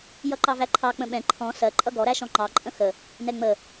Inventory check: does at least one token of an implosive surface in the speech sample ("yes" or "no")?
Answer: yes